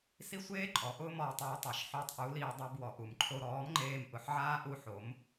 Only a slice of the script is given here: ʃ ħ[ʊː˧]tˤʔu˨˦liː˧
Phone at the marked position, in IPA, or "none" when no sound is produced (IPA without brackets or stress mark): ʊː˧